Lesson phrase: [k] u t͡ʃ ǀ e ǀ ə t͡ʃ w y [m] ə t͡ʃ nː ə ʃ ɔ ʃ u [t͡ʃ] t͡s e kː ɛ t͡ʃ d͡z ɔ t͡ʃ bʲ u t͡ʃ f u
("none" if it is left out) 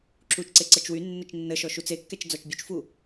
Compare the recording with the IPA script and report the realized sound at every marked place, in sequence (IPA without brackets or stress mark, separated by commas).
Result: ǁ, nː, none